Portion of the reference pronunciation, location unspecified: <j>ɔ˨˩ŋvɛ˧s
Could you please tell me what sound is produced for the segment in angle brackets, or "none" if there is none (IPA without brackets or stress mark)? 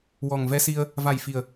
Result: w